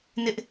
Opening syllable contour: high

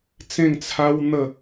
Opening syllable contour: falling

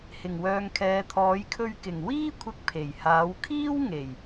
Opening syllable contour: low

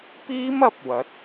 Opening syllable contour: high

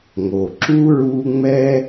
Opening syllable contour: low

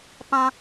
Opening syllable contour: high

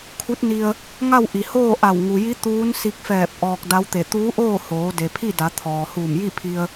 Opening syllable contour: rising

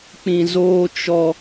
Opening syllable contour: low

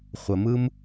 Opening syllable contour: low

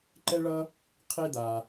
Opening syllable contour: high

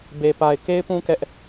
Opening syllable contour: low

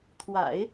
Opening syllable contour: low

